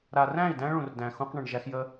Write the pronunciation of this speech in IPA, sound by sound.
ɾ a˨ r æ̃˦˨ i̯ d æ̃˦ ɭ ũ˨ r d æ̃˨ x ũ˦ q ɳ ə̃˨ ɳ ʒ æ˦ x j ə˦

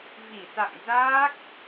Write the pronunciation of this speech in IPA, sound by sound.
v i˧˩ s a̰˧˨ ŋ z aː˦˥ k̚

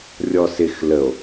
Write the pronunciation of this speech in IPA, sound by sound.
rʲ ɔ s ɪ x l ə o̯

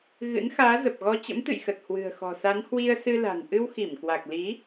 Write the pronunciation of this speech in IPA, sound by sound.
ɣ ɨ̰˧˥ n x aː˨˦ z ə˨˩ p̚ ɣ ɔ˧ t͡ɕ ə̰˧˥ m t̪ ɨ̰˧˨ j x ə˨˩ t̚ h w ɨ̤˨˩ ə̯ x ɔ̤˨˩ s a˨˦ n h w i˧ ə̯ s ɨ˧ l a̤˨˩ n ʔ ɨ˧ w x i˧˩ m k w a˨˩ k̚ l i˨˦

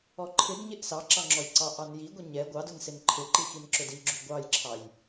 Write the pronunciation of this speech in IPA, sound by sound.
ɔ ǃʰ ɪ d ɲ ɪ ʔ s ɑ ǁ ɑ ŋ͡ǁ ɔ j ǀ ɑ ʔ ɑ n j i ɡʷ ɪ ɲ ɛ ɡʷ ɑ d ʊ n s ɪ n ǃʰ ɪ ǃ i x i n ǁ ʊ d i ɡ͡ǁ u ɡʷ ɑ j ǁʰ ɑ j

